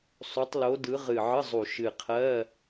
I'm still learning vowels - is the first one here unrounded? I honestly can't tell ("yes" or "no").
no